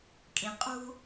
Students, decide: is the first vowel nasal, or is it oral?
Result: nasal